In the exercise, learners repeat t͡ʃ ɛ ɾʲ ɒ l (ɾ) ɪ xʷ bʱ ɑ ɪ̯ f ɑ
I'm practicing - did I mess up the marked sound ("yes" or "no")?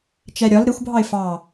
no